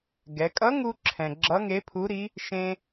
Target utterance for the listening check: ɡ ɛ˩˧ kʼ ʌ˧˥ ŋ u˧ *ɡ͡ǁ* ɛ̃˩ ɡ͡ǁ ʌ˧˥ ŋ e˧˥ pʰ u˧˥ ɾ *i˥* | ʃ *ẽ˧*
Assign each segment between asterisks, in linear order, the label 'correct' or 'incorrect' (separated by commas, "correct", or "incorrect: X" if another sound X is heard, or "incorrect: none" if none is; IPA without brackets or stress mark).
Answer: incorrect: ǁʰ, incorrect: i˧˥, correct